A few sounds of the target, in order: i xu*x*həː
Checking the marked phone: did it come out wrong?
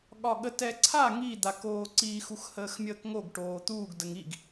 no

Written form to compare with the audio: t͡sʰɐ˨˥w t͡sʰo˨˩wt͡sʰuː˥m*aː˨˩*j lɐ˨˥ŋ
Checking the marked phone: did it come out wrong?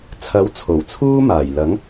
no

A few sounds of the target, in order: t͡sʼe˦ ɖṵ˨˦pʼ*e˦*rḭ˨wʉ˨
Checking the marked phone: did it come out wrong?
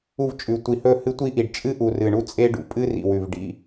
yes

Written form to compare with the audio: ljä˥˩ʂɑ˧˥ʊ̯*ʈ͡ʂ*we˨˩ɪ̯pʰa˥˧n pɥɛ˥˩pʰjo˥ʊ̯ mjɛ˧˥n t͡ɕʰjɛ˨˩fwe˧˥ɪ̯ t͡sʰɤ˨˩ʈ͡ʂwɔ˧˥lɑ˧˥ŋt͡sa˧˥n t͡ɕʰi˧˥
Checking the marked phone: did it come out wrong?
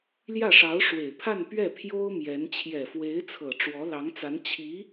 yes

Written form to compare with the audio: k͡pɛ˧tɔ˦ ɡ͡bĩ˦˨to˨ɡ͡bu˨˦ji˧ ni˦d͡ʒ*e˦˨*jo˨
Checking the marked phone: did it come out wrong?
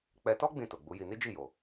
yes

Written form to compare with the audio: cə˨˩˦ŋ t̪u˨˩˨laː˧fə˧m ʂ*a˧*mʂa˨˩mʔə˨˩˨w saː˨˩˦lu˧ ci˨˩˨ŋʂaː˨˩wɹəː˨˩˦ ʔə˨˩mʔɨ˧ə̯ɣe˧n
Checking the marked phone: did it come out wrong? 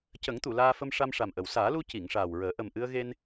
no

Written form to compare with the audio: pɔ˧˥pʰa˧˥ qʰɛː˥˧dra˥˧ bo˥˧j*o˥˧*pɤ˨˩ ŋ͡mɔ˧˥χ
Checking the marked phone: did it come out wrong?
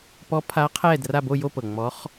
no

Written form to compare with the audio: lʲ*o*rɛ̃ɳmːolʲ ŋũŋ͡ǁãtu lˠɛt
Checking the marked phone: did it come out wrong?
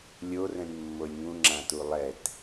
no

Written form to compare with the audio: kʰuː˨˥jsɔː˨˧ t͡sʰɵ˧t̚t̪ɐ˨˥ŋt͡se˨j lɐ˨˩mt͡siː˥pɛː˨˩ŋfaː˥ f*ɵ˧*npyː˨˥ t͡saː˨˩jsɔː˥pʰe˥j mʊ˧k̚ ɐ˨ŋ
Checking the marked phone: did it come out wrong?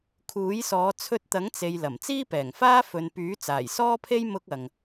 yes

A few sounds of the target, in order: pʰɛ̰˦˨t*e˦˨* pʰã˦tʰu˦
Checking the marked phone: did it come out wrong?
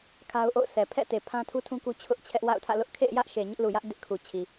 yes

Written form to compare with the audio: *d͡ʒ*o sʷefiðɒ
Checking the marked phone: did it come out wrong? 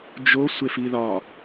no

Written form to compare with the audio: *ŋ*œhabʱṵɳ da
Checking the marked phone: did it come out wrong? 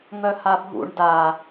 no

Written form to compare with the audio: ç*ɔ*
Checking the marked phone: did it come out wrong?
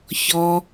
no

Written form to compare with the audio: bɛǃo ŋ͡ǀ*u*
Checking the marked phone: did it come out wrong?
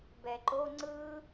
yes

